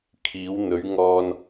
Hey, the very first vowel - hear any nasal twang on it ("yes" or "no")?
no